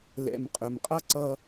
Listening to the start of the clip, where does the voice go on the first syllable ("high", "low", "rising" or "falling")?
low